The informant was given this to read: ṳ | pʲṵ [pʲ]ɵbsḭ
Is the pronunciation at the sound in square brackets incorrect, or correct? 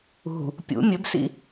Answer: incorrect